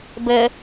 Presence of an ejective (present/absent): absent